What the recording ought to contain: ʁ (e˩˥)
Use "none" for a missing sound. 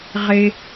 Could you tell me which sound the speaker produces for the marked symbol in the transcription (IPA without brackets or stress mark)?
e˥